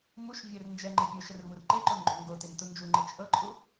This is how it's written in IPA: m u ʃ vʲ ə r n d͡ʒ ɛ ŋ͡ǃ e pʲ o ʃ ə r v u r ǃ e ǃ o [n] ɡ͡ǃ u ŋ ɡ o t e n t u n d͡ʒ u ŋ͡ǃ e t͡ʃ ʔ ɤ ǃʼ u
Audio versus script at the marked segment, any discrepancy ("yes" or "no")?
no